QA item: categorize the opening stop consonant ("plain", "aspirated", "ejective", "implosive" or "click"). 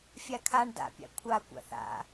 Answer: aspirated